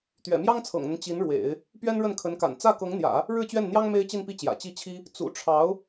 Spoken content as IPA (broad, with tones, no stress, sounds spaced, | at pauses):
t̪ ɥ ɛ̰˨˩ m j ɑ˥ ŋ t͡sʰ ɤ̰˨˩ ŋ n̪ ə˦ n t͡ɕ i˧˥ n ɻ w ḛ˨˩˦ ɪ̯ | p ɥ ɛ˥ n ɻ ə˥˩ n kʰ ə˧˥ n k a̰˨˩ n t͡s ä˥˩ k ɤ˧˥ ŋ n̪ j ä̰˨˩˦ | ɻ ɻ̩˥˧ t͡ɕ ɥ ɛ˥˩ n n̪ j ɑ˥ ŋ m e˥ ɪ̯ t͡ɕ i˥˧ n p i˥˩ t͡ɕ j ä̰˨˩ t͡ɕ i˥˩ t͡ɕʰ i˥ | t͡s ṵ˨˩ ʈ͡ʂʰ ɑ˧˥ ʊ̯